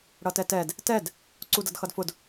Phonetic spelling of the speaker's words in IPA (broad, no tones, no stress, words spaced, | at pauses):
ɽʌtɛtɛd | tɛd | ǀudʌdxʌdfʊd